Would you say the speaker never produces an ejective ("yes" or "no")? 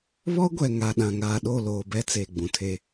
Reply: yes